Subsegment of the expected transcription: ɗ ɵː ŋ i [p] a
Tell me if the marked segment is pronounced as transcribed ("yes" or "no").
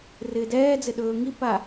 yes